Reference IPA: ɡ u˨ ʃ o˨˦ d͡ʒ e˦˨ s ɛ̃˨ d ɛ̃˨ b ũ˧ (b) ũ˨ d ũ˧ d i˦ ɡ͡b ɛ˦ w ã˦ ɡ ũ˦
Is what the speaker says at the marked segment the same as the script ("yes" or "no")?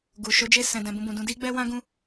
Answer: yes